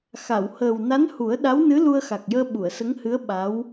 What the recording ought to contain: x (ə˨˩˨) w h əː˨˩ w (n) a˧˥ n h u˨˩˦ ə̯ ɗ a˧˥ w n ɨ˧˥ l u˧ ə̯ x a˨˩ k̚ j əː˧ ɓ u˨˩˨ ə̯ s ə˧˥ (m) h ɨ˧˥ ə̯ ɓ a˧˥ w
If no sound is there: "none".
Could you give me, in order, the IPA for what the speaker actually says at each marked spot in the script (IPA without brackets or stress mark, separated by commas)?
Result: a˨˩˨, n, ŋ